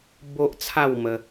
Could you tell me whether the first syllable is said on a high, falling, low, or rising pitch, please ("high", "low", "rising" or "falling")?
high